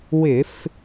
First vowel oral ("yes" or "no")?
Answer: yes